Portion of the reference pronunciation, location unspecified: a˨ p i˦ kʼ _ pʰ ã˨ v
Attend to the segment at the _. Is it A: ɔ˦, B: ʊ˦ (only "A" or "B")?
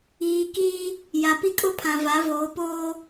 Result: B